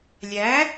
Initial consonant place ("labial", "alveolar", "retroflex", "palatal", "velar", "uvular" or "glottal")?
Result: alveolar